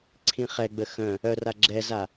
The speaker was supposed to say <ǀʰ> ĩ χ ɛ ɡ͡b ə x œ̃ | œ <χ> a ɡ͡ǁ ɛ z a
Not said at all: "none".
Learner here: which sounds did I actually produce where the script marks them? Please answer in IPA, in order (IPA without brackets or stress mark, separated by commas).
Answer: ǀʰ, r